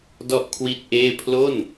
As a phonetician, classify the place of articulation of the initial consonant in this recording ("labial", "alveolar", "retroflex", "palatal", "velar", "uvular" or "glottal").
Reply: alveolar